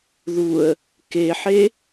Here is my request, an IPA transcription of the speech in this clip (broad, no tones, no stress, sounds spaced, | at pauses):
ð u ə̯ | k e ħ e